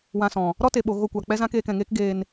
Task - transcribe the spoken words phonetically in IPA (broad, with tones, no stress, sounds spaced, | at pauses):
w ã˧ s ɔ̃˨ | ɾ ɔ˦ t e˨ ɓ o˨ ɣ o˧ kʷ a˨ k͡p ɛ˦ z ã˦ k eː˧ k ɛ̃˨ ŋ eː˦ k ɡ eː˧ n